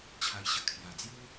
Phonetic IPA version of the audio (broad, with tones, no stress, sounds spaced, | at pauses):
t͡ɕʰ a˧ j ɕ ə˧ kʰ j a˨˩ d͡z j u˦